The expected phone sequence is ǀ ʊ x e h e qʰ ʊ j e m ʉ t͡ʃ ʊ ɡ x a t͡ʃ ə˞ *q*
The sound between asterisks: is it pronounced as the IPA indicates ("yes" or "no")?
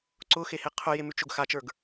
no